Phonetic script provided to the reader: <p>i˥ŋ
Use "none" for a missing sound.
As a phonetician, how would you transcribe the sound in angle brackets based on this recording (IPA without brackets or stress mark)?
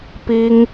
p